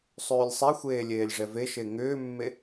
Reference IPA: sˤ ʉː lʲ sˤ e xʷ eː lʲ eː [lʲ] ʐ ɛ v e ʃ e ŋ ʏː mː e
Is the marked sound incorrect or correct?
correct